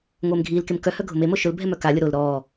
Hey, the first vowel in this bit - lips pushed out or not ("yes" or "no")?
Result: no